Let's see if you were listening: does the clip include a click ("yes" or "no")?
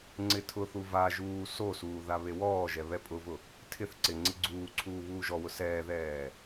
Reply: yes